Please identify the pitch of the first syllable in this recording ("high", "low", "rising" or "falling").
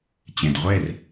low